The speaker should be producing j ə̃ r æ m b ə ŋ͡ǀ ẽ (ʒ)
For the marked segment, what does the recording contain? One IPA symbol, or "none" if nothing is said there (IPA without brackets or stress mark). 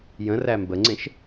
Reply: ʃ